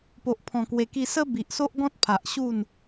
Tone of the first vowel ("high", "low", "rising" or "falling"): low